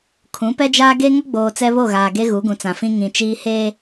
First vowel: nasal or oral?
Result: nasal